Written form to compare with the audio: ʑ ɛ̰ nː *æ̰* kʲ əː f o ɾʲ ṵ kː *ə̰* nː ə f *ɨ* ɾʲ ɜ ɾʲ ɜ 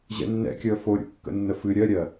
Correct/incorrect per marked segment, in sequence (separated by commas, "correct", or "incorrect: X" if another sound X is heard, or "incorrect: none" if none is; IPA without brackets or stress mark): incorrect: ɛ̰, correct, correct